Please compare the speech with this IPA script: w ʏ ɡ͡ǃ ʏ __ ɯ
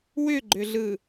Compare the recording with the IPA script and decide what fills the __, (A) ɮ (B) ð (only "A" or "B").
A